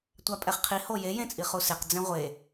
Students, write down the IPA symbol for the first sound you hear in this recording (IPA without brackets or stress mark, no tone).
tʷ